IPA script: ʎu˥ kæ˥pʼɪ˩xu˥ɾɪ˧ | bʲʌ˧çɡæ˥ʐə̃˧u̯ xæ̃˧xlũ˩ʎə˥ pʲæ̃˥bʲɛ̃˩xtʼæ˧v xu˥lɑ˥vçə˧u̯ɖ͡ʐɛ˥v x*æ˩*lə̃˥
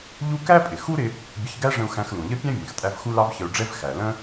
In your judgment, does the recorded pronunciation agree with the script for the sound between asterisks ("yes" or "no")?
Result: yes